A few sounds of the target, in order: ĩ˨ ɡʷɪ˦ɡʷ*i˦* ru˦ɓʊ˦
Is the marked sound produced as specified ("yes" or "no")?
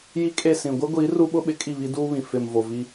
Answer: no